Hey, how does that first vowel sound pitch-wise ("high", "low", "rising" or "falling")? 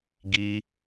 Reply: high